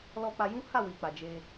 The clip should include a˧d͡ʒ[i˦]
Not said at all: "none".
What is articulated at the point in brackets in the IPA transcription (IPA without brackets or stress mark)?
e˦